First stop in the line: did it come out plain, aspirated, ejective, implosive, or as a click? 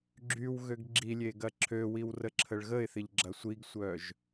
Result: click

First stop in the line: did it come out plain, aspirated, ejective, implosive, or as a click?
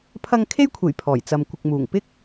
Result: aspirated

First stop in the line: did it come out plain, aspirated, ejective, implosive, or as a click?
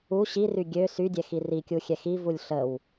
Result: plain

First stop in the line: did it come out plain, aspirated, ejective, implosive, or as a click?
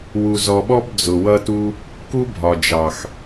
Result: implosive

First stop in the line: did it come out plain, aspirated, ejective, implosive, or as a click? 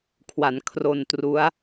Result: aspirated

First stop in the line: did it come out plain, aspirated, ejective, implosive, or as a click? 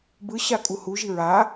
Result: plain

